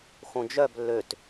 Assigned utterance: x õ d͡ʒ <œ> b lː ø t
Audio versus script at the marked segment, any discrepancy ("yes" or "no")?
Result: no